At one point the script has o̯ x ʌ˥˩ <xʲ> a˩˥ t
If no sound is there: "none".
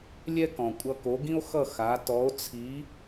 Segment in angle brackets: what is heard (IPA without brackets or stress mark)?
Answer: x